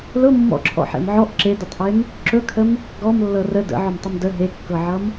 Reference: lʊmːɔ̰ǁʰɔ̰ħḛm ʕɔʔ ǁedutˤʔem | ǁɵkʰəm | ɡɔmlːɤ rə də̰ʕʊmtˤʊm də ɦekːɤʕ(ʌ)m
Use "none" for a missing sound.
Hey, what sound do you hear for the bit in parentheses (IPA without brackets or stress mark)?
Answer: ʌ